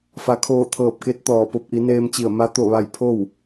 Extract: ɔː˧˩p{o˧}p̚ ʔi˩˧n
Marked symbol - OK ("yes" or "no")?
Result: yes